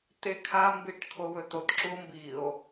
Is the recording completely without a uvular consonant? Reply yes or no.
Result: yes